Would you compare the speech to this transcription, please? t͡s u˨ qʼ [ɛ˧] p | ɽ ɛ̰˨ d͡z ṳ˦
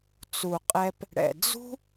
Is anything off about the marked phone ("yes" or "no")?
no